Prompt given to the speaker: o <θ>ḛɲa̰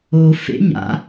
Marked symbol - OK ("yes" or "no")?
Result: no